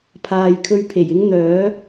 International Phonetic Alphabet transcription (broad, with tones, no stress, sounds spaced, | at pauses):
pʰ aː˨ j kʰ ɵ˧ ɥ pʰ e˨˩ j ɪ˥ ŋ n̪ œː˨˥